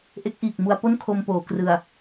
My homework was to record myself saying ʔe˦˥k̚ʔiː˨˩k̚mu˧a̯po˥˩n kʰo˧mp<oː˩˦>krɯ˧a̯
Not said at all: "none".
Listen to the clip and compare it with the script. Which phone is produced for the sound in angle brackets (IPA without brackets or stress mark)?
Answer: oː˩˦